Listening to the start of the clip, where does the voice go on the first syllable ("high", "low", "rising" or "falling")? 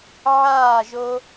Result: falling